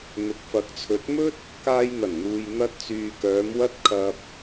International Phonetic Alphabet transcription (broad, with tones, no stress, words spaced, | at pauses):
n̪ʊ˨k̚fɐ˨˥k̚t͡sʰɵ˨˥t̚ mɵ˥t̚ | kaː˧jn̪ɐ˨˩nn̪uː˨j n̪ɐ˧t̚t͡syː˨kœː˨˧m wɐ˥t̚kʰɐ˧p̚